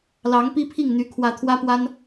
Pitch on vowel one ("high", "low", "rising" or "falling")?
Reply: rising